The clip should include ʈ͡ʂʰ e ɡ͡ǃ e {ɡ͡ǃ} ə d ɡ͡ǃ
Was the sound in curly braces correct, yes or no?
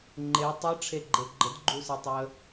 yes